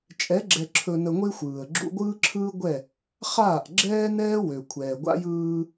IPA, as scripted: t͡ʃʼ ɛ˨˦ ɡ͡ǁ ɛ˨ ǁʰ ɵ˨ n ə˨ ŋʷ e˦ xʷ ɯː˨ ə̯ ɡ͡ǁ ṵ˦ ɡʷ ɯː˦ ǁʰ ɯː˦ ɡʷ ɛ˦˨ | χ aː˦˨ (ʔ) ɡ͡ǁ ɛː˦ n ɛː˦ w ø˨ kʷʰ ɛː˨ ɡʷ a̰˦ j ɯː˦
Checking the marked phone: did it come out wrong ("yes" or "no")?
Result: no